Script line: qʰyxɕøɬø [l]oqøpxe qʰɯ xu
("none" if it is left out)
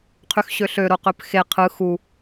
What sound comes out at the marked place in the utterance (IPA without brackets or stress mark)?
ɾ